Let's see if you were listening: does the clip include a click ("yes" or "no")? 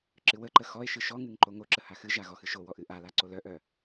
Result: yes